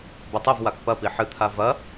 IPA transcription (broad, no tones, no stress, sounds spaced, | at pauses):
b ɘ tˤ e v w a k p ɐ p i ħ ɨ t̪ʰ a v ɐ